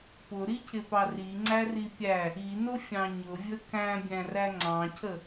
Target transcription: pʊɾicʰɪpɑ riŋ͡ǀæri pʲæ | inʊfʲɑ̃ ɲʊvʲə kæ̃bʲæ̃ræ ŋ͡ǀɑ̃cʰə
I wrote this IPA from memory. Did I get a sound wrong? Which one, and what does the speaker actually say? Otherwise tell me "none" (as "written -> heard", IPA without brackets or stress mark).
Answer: none